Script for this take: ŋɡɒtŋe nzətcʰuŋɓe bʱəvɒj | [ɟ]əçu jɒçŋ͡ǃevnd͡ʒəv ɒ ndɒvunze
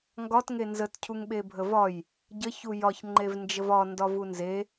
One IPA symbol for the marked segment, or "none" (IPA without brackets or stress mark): ɟ